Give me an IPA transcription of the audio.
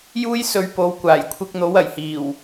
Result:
j uː˥ j s ɵ˨˧ ɥ p o˨˧ w kʷ aː˨˩ j kʷʰ ɪ˧ k̚ n̪ o˨˥ w ɐ˨˩ j h iː˨˩ w

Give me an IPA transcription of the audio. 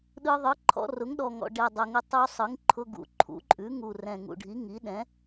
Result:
ɗ ɯ˧ ðˤ ɯ˩˥ ǃʰ ɔ̰˧ r ʊ˩˥ ŋ ɗ ɔ˨˩ ŋ ɔ̰˨˩ ɖ ɛ˨˩ dˤ ʊ˨˩ ŋ ʊ˧ tˤ u˧ sˤ ɯ˩˥ ŋ ǃʰ ʊ˧ ɡ ṵ˩˥ ǃʰ ṵ˩˥ ǃʼ ʉ˩˥ ŋ u˨˩ r ɛ̃˨˩ ŋ ṵ˨˩ ɖʱ i˩˥ ŋ i˩˥ ɗ ɛ̃˩˥

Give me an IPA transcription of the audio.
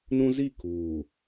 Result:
n ũ˦ z i˦˨ k uː˨

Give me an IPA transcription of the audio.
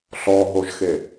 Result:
ɬ ɔ ɦ o ʒ x e

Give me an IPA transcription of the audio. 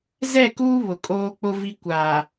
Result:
z ɛ˦˨ k uː˦ β ʊ˨ kʼ oː˦ k͡p ʊ˦ v i˦ kʷ aː˨

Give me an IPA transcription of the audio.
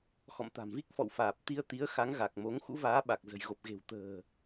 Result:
x ɔ̰˧˨ m t̪ a̤˨˩ m v i˦˥ k̚ f ɔ̰˧˨ w f aː˨˩ p̚ t̪ i˧ ə̯ t̪ i˨˦ ə̯ x a˨˦ ŋ ɣ a˨˩ k̚ m o˨˦ ŋ x ṵ˧˥ v aː˨˦ ɓ a˨˩ k̚ z ə̤˨˩ j ɣ o˨˩ p̚ ɣ e̤˨˩ w t̪ ə̤ː˨˩

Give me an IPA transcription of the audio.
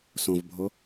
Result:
s õ v bʱ o

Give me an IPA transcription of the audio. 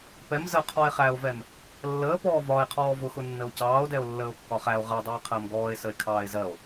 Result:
p ɛ m z ə qʰ ɔ e̯ χ æ o̯ v ɛ m | lː əː p ɔː v ɒ e̯ qʰ ɔː v ʊ x ʊ nː ə o̯ c ɑː o̯ d ɛ o̯ lː əː o̯ kː ɒ χ æ o̯ ʁ ɜ dˤ ɛ e̯ qʰ əː m ɡ ɔː e̯ s ə e̯ kʰ ɑː e̯ z ɜ o̯

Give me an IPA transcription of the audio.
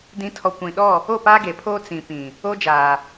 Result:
d ĩ˨˦ tʰ ɔ˨ kʷ ĩ˨ ɗ ɔ˦˨ | o˦˨ p aː˦ ɡ e˨ pʰ oː˦ t͡s ĩ˨ p ĩ˨ | o˦ d͡ʒ aː˨

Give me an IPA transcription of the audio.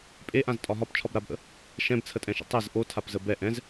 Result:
pʼ e ʔ ã z tʼ ɒ ɦ ɒ p t͡ʃʰ ɒ b ɾ a b ʔ ə̰ | ʃ ɛ̃ b t͡sʰ ə tʼ ɛ̃ ʃ ə̰ tˤ ɛ z ʔ o tʰ a p z ə b ɛ ʔ ɛ̃ z

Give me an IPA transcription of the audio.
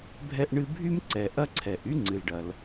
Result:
bʱ ɛ˥ ʔ ɳ ɨ˥ bʱ y˥ m ǀ ɛ˩ ʔ ɐ˥ ǀʰ ɛ˩ ʔ y˥ ŋ͡ǀ ɨ˩ l ɖ ɐ˩ l

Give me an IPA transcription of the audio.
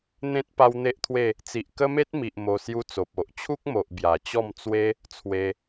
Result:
n̪ ẽ˦ t̚ p a˦ w n̪ e˦ ʔ t̪ʰ w e˥˧ | t͡s i˨ ʔ k ə˦ m e˦ t̚ m i˨ ʔ m o˧ s j u˦ t͡s o˨ p̚ o˨ ʔ t͡ɕʰ u˦ k̚ m o˨ ʔ b j a˨˩ t͡ɕ ɔ˥˧ m t͡s w e˦ | t͡sʰ w e˧

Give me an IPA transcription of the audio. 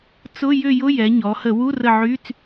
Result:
t͡s ʊ˧˥˧ j ʏ˦˨ j ʊ˧˥˧ j ɛ˩˧ ɲ ɔ˩˧ h ə˧˩˧ w u˧˥˧ r ə˦˨ ʕ y˧˥˧ t͡s

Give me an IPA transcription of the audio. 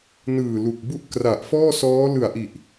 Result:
n ɯː˨˩ l u˨˩ k̚ b u˥˩ ʔ k r a˨˩ ʔ f ɔː˥˩ s ɔː˦˥ l ɯ˨˩ a̯ ʔ i˨˩ ʔ

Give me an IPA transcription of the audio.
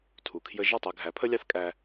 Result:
tʰ u˩ kʰ j ə˧ ʒ ɔ˥˩ tˤ ɛ˧ ɡʱ æ˩˥ pʰ ə˥ lʲ ɑ˥ θ kʼ æ˧

